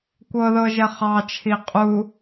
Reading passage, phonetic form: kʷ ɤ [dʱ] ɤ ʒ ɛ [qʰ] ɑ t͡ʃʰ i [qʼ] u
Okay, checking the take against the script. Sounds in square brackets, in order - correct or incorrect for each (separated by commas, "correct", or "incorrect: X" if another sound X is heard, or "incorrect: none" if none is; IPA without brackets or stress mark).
incorrect: ð, incorrect: χ, correct